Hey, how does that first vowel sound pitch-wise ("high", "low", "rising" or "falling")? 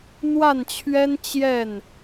falling